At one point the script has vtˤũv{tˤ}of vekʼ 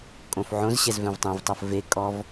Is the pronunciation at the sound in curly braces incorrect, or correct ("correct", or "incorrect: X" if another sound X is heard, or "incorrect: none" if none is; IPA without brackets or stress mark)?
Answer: correct